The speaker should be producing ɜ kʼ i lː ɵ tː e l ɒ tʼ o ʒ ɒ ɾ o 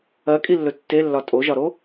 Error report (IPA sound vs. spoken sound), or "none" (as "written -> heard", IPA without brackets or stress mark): l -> lː